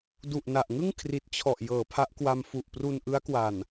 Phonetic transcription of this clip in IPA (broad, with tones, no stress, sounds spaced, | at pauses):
d u˨˩ ʔ n a˨˩ ʔ ŋ ɯ˥˩ ŋ kʰ r i˨˩ t̚ t͡ɕʰ ɔ˨˩ ʔ j ɤː˩˦ pʰ a˦˥ ʔ k w a˧ m f u˨˩ ʔ p r u˧ n ʔ ɯ˦˥ a̯ k w a˨˩ n